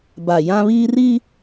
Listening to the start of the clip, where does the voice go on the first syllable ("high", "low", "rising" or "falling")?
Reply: low